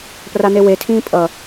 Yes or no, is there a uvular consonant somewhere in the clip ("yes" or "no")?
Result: no